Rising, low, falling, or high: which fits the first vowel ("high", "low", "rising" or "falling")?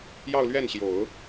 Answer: falling